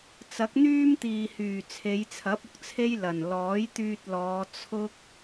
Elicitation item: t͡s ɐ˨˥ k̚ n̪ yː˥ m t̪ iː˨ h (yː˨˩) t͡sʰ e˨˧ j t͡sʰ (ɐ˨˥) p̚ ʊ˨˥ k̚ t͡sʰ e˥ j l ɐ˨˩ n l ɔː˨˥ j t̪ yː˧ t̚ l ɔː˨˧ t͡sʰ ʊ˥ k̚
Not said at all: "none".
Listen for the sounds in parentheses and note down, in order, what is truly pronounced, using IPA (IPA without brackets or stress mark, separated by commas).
yː˨˩, ɐ˨˥